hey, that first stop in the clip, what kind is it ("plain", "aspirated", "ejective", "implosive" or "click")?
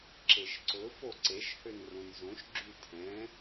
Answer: click